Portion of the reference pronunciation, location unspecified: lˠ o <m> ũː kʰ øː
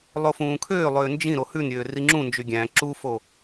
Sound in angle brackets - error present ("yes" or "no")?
yes